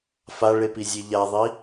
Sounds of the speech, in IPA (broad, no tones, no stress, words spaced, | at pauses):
faɭepizʲe ʎaðˤi